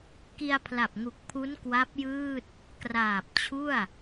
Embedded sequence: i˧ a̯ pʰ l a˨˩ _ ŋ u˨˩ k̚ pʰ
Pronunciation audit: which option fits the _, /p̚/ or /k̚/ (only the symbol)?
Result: p̚